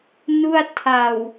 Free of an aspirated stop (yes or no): no